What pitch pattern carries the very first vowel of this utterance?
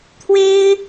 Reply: high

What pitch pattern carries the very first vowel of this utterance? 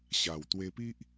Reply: low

